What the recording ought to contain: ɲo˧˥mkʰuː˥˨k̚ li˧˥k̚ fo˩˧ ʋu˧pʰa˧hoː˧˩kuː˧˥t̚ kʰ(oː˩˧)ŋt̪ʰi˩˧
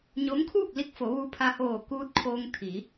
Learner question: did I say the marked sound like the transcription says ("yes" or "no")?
no